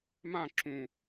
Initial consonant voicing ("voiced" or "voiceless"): voiced